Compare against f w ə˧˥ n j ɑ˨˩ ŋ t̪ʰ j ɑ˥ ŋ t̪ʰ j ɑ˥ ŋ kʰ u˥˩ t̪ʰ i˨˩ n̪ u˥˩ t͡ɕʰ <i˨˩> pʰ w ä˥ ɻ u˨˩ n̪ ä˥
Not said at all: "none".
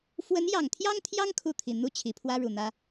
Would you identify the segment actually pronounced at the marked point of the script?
i˨˩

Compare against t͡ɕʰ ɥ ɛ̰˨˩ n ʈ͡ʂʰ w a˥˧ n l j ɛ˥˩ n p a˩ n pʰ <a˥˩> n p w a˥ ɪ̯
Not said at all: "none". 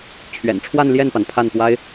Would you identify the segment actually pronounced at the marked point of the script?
a˥˩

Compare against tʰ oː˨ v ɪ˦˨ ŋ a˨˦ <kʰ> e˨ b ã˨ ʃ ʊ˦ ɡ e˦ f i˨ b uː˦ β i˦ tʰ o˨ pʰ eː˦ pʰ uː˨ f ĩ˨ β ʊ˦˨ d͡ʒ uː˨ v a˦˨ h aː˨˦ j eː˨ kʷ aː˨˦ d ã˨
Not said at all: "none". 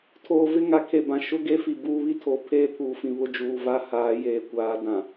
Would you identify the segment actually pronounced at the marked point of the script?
kʰ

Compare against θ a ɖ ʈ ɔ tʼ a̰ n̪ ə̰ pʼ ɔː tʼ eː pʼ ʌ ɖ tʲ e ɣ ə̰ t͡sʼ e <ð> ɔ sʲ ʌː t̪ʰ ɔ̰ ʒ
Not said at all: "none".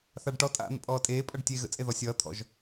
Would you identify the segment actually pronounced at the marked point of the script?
ð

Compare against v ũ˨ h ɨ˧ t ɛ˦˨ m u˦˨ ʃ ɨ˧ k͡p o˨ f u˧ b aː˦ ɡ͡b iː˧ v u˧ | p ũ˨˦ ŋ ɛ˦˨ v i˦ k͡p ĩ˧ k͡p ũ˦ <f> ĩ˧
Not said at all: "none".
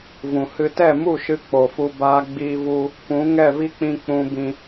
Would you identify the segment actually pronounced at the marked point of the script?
b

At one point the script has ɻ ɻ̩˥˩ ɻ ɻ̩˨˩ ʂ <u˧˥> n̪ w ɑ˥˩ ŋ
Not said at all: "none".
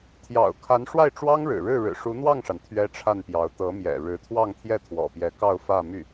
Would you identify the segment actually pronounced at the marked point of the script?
u˧˥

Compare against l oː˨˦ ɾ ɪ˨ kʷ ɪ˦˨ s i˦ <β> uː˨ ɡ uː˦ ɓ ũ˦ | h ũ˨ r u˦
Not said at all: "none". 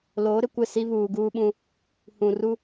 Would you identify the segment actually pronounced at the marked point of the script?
β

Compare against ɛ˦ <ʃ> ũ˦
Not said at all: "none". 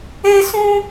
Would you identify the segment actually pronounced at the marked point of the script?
s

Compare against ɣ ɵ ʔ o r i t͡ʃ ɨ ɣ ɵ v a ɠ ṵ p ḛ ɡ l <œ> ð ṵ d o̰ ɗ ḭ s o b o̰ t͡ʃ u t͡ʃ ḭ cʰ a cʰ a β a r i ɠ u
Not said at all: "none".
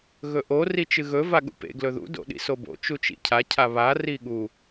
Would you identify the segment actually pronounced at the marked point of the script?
ɵ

